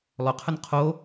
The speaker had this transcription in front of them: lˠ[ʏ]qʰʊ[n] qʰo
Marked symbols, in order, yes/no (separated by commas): yes, yes